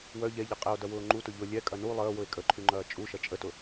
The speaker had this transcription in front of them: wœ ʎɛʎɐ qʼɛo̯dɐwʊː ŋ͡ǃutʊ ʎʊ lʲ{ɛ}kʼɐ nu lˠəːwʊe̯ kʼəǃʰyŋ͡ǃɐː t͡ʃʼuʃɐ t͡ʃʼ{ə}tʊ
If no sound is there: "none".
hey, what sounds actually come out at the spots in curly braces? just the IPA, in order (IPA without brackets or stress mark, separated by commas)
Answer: ɛ, ə